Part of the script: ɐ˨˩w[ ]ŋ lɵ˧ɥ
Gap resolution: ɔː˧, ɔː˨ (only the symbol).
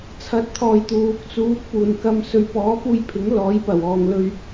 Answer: ɔː˨